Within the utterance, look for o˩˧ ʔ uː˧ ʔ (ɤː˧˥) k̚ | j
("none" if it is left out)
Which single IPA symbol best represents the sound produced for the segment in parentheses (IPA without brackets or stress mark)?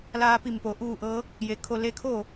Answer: ɤː˧˥